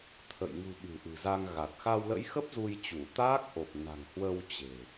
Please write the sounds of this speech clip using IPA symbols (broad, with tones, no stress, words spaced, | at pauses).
t̪ʰə̰˧˨j ŋṳ˨˩ ɓɨ̤˨˩ ʔɨ̤˨˩za˧ŋɣa˨˩t̚ xa˧wlə̰˧˥jxə˦˥p̚ zu˧j t͡ɕu˧˩t̪aː˦˥k̚ʔo˨˩p̚na̤˨˩ŋ hwə˧w t͡ɕe̤˨˩